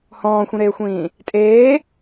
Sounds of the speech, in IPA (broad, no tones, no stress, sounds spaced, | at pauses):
h ɔ̃ː xʷ ĩ ɾ eː xʷ ĩː | tʼ eː